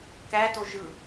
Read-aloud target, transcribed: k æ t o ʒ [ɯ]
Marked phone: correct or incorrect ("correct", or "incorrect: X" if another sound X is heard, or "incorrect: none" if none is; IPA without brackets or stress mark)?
correct